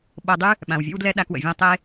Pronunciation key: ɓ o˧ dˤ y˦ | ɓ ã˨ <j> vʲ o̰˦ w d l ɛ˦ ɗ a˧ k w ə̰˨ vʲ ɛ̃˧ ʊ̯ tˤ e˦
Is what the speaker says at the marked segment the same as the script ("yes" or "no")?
no